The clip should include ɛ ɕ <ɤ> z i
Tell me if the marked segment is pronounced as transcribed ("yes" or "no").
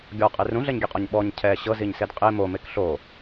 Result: yes